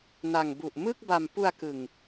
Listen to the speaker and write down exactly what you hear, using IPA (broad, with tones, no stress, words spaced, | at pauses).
na˨˩ŋbu˨˩ʔ mɯ˥˩k̚ba˨˩m pu˧a̯kɯ˨˩ŋ